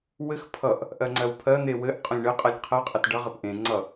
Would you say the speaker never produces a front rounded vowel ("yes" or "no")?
yes